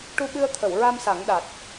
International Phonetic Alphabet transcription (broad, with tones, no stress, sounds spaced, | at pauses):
ʈ u˧ ɓ ɨ˧ ə̯ t̪ʰ ə˨˩˨ w ɹ a˧ m s a˨˩˦ ŋ ɗ a˨˩ t̚